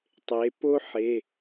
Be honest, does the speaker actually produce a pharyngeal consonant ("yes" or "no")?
yes